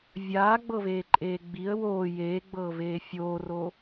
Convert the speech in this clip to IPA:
vʲ aː ɡ͡b ɤ v eː ǃʼ eː ɡ͡b i ə̯ w oː j eː ɡ͡b ɤː v eː fʲ oː r o

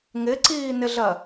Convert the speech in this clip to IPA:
ŋ ɪ ǀ iː n ɪ ɮ ɜ

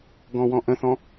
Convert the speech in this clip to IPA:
ɡ ɔ̃ w ɔ̃ ʔ ə̃ θ ɔ̃

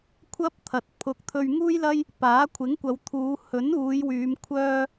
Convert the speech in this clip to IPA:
kʷʰ ɐ˥ p̚ t̪ʰ ɐ˨ t̚ pʰ ʊ˨˥ k̚ t̪ʰ ɵ˧ ɥ ŋ uː˥ j l ɐ˥ j | p aː˨˥ kʷʰ ɪ˨˥ ŋ kʷ ɐ˨˧ w t̪ʰ uː˨˧ h ɵ˨˥ n uː˨˧ j w yː˨˧ m kʷʰ œː˥

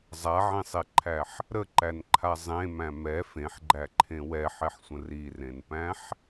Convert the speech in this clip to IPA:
zˤ a ʕ ẽ sˤ e ǃʰ æ ħ | ɾ ə ǃ æ n ǃʰ a zˤ ẽ m æ̃ m ɛ f ẽ ħ ɡ͡ǃ æ ǃʰ ẽ w ɛ ħ ɛ ħ sʷ ə̃ r i r ẽ n p æ̃ ħ

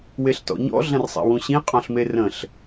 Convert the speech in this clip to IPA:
w e ɬ t ɔ̰ ɲ ɔ̰ ɮ ɐ̃ r sˤ ḛ w ũ ɕ ĩ qʼ ɔ̃ ɬ m e r ə̃ ɬ

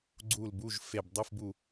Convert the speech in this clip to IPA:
ɡ͡ǀ u˦˨ l b u˧˥˧ ʒ f e˦˨ b dˤ o˧˥˧ f b u˦˨

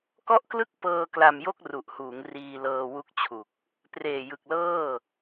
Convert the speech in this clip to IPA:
k ɔ˦˥ ʔ k l ɯ˦˥ k̚ p ɤː˧ k l a˧ m j o˥˩ k̚ r u˨˩ ʔ h uː˩˦ ŋ r iː˧ l ɤː˧ w u˦˥ k̚ t͡ɕʰ u˨˩ k̚ | p r eː˨˩ j ɯ˨˩ k̚ l ɤː˥˩

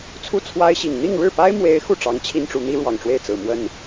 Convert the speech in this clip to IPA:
t͡sʰ u˥˩ t͡sʰ w a˥ ɪ̯ ɕ i˨˩ ŋ n̪ i˥˧ ŋ ɻ ɻ̩˥˩ p a˥ ɪ̯ m w e˧˥ ɪ̯ x u˥˩ ʈ͡ʂ ɑ˧˥ ŋ t͡ɕʰ i˥ n ʈ͡ʂ u˧˥ n̪ i˥ ɻ w ɑ˨˩ ŋ ʈ͡ʂ w e˥˩ ɪ̯ t͡s ɹ̩˨˩ m w ə˥˩ n

